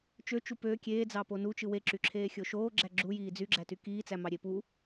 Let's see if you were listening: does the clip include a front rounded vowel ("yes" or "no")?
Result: yes